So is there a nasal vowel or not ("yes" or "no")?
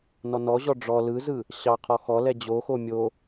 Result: no